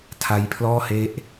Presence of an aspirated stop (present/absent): present